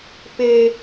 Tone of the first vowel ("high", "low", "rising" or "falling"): high